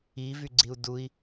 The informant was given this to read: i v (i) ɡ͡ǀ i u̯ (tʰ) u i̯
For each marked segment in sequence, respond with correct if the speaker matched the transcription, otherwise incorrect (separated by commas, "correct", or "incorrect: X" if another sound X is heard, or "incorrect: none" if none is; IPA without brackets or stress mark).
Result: incorrect: y, incorrect: d